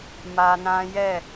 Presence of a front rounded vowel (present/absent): absent